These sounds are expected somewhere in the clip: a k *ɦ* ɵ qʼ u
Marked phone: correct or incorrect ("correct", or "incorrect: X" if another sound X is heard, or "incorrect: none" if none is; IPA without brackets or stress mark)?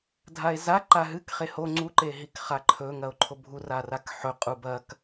incorrect: ħ